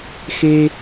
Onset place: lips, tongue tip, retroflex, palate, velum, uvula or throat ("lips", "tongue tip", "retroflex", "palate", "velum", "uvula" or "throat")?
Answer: velum